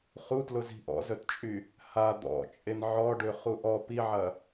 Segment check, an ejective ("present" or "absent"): present